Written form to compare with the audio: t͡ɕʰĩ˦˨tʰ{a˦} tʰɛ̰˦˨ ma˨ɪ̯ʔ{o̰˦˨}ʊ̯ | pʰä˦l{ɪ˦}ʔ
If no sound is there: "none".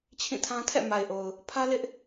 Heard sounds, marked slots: ã˦, o˨, ɪ˦

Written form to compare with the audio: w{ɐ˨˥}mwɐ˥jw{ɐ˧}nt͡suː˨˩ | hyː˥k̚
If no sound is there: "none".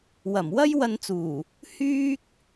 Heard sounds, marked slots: ɐ˨˩, ɐ˧

